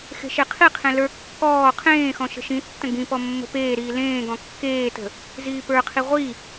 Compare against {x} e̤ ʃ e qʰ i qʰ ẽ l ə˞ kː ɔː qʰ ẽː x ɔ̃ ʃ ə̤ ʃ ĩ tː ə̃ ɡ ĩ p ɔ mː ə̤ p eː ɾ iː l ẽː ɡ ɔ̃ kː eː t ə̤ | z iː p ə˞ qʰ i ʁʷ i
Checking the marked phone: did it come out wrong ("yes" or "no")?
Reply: no